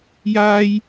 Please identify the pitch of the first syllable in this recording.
high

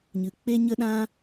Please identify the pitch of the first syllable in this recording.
low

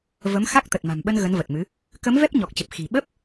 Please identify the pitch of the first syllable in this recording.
rising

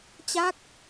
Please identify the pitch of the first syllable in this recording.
falling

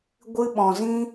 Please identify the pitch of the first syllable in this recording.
high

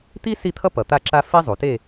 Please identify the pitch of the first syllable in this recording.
high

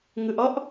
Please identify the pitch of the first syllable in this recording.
low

